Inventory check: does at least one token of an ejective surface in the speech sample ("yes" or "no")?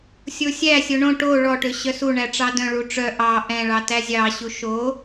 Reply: no